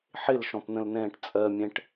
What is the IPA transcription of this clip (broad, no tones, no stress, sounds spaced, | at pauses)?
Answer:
ħ ɪ l ʃ ɔ̃ p n̪ ə̃ l n ɛ̃ː ʈ t͡sʼ ɜ mʲ ɛ̃ ʈ